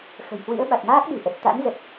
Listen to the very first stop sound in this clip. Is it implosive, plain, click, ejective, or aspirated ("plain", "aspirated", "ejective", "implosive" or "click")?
implosive